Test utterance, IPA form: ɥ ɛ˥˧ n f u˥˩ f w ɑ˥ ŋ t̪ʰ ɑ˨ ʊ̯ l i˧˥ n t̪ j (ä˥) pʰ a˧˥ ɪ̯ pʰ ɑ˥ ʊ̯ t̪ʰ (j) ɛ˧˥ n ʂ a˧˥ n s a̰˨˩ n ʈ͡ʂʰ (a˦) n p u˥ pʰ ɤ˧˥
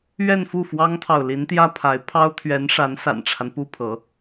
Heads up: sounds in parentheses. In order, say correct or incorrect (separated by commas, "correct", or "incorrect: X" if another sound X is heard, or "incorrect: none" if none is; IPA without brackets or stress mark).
correct, incorrect: ɥ, correct